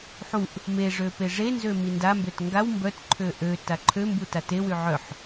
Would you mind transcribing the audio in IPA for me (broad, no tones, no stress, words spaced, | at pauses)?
ħuʔ | meʐø peʐenzø mindambøt ŋɡaw mbœtǃʰø ʔø taǃʰømbu tatewy ʕœħ